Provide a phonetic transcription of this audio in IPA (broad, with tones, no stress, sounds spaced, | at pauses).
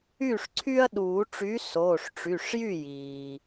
yː˥˩ ʂ ǀʰ y˦ ɐ̯ ɗ uː˨˩˦ ʈ͡ʂ y˨˥ s oː˩˧˩ ʂ ʈ͡ʂ y˩˧˩ ʂ j y˥˩ j iː˩